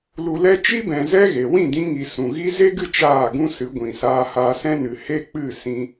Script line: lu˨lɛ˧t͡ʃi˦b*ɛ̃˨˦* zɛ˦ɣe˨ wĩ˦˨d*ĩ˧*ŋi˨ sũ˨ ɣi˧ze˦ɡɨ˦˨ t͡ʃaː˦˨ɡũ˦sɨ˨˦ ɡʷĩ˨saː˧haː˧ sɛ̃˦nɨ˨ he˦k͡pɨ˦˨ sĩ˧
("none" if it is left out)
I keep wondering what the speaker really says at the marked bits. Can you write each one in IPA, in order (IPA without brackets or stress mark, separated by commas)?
ɛ̃˨, ĩ˧